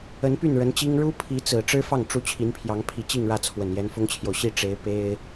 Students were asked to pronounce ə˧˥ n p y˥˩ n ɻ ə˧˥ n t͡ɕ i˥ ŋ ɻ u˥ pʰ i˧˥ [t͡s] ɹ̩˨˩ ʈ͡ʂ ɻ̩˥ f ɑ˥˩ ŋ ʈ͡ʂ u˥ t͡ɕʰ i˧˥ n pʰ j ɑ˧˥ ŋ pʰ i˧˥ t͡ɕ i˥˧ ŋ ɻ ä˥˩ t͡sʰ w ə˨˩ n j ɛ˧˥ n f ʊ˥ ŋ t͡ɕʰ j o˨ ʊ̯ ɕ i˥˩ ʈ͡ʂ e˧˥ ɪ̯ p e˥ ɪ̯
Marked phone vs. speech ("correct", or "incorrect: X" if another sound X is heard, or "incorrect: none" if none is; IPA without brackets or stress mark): correct